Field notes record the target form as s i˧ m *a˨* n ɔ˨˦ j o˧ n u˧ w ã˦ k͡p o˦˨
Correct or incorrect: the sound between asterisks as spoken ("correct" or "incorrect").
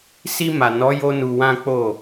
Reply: correct